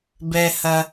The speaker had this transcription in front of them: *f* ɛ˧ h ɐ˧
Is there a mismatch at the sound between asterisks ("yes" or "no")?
yes